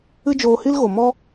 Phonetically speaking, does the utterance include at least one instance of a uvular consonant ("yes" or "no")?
no